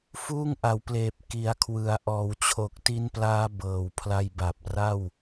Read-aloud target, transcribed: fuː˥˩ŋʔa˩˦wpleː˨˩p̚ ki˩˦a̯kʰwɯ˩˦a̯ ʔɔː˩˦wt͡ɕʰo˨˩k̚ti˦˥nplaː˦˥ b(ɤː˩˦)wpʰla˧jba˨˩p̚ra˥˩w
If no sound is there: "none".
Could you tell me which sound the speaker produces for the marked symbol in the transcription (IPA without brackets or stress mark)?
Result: ɤː˨˩